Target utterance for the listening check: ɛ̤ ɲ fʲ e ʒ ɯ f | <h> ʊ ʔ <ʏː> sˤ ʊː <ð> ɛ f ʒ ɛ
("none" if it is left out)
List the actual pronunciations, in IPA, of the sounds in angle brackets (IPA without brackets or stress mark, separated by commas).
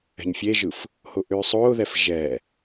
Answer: h, ʏː, ð